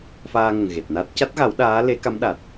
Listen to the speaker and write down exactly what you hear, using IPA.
f aː˧ ŋ ə˨˩ ŋ ɣ e˨˩ t̚ n a˦˥ t̚ c a˦˥ t̚ ɣ a˨˩˦ w ɗ aː˧˥ l e˨˩˦ k a˧˥ m ɗ a˨˩ t̚

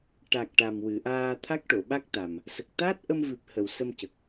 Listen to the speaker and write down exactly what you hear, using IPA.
ʈ a˨˩ k̚ ʈ a˨˩ m w ɨ˨˩˨ ʔ aː˧ t̪ʰ a˦˥ k̚ ʈ o˨˩˨ ɓ a˦˥ k̚ t̪ a˨˩ m | s ə˨˩ k̚ t̪ aː˦˥ t̚ ʔ ə˧ m v ɨ˨˩ p̚ h ə˨˩˨ w s ə˧ m c ə˨˩ k̚

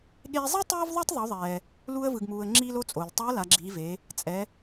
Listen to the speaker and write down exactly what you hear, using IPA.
ɠ eː˧ zˤ i˥ tˤ eː˥ v ðˤ o˥ tˤ ðˤ u˩˧ ðˤ ɛː˩ | l u˧ ə̯ v ɯ˩ ɡ m uː˩ ə̯ ŋ͡ǁ iː˥ l o˥ t͡sʼ o˩ l tˤ ɛ˧˥ ə̯ l a˩˧ ɡ͡ǁ iː˩˧ v eː˩˧ | t͡sʼ ɛ˩˧

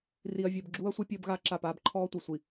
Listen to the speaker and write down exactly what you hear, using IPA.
r i˨ ɐ̯ vʲ əː˨ b ɡ͡ǁ uː˦ ɐ̯ sʷ ɨ˦ pʲ əː˦ b ɣ aː˦ ǁ a˦˨ p aː˦ b ǃʰ ɔː˦ tʷ ɨ˨ sʷ i˨

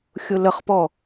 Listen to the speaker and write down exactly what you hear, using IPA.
xʲ ʊ l ə χ p ɔ

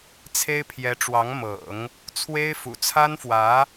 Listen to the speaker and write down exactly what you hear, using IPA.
t͡sʰ e˥ ɪ̯ pʰ j ɛ˧˥ ʈ͡ʂ w ɑ˧˥ ŋ m ɤ̰˨˩˦ ŋ | t͡sʰ w e˥ ɪ̯ f ṵ˨˩ t͡sʰ a˥ n f w ä˧˥

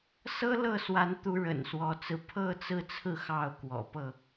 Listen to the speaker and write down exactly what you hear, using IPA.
s ɤ˦ l ɤ˥˨ s w a˨˦ n t̪ u˨˦ ɻ ə̰˨˩ n s w ɔ˨˦ t͡s ɹ̩˧ pʰ ɤ˥˨ t͡s ɹ̩˥˨ t͡sʰ ɹ̩˥˨ x ɑ˥˨ ʊ̯ k w ɔ̰˨˩ p ɤ˥˨

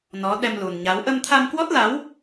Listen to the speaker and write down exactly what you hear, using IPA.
n ɔ˨˦ ɗ ɛ˧ m l u˨˩ n ɲ a˨˦ w ʔ ə˧ m t̪ʰ a˧ m k w ɔ˦˥ t̚ l a˨˦ w

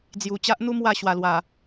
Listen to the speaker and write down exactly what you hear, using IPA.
d͡z j u˨˩ t͡ɕ a˦ ʔ n̪ u˦ m w a˥˧ ɕ w a˨˩ l w a˨˩

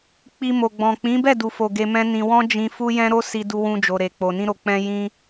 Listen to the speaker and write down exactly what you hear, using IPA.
k͡p i˧ m o˨ ɡ͡b ɔ̃˨ k͡p ĩ˨˦ b ɛ˦˨ d u˨ f o˨ ɡ e˧ m ɛ̃˦ n ĩ˧ w ɔ̃˦ d͡ʒ ĩ˧ f u˦ j ɛ̃˦ ɾ o˦ s i˧ d u˧ w ũ˧ d͡ʒ o˧ ɾ e˧ k͡p o˧ n ĩ˧ ɾ o˨ k͡p ɛ̃˧ j ĩ˦

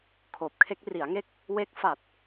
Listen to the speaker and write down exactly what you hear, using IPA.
kʰ oː˨˩ p̚ kʰ e˦˥ k̚ r i˩˦ a̯ ŋ e˥˩ k̚ | w e˦˥ k̚ f a˨˩ t̚

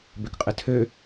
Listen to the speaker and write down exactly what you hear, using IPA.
b ø k qʼ ɘ tʰ ø

